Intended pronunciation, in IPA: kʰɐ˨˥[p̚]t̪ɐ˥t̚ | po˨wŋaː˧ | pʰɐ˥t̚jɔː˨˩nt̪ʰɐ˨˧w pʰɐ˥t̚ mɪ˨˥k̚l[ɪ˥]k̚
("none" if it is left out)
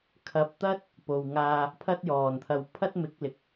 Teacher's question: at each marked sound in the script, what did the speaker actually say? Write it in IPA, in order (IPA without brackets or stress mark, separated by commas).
p̚, ɪ˨˥